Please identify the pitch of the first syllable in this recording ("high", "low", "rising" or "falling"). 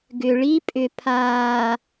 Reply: low